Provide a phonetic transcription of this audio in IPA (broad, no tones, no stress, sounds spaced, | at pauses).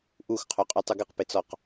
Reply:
ʔ u x qʰ œ qʼ y tˤ u ɡ ɪ q p ɪ t͡s ɔ q